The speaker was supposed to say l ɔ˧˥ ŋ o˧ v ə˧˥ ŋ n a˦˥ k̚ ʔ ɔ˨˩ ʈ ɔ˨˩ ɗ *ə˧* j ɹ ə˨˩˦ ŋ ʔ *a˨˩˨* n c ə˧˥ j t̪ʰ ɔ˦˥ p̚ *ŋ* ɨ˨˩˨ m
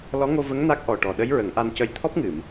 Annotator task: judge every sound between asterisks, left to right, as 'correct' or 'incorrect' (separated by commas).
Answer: incorrect, incorrect, correct